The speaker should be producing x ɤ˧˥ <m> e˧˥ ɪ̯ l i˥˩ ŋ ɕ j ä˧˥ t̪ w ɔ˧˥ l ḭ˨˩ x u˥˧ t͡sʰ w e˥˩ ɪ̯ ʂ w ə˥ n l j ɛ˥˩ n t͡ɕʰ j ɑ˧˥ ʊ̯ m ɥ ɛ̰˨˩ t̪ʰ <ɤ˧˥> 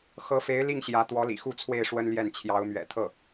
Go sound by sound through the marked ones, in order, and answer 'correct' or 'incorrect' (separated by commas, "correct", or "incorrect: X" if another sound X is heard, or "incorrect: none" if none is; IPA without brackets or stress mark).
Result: incorrect: f, incorrect: ɤ˥˩